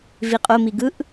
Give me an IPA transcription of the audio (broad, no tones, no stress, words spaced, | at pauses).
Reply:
viqʼomi ɡɯʔ